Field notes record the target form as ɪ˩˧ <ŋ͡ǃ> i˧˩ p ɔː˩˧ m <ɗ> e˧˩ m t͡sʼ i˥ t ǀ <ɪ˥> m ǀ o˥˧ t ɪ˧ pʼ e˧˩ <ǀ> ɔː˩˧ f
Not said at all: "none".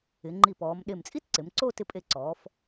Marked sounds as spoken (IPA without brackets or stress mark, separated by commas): ŋ͡ǃ, ɗ, ɪ˩˧, ǀ